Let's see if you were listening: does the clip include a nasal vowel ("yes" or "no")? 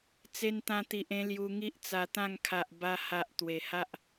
yes